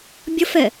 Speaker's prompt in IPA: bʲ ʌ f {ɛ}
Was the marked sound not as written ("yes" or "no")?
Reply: no